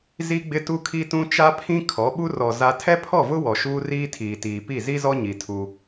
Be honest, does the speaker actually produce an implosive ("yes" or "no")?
yes